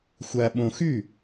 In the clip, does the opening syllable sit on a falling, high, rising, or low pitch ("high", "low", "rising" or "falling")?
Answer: low